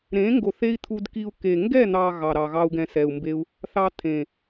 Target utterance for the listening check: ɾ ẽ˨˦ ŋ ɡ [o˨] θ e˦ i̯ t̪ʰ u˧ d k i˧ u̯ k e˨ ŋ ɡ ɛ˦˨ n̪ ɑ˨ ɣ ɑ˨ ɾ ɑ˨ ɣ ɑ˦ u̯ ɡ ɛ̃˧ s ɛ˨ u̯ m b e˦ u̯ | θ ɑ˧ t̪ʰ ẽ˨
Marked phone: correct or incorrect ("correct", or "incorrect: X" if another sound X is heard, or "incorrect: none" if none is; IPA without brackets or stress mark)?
correct